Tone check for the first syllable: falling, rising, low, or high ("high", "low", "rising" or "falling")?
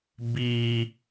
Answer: high